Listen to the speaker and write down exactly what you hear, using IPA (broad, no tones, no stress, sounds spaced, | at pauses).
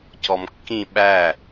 c ɔ m kː ĩ ɓ æ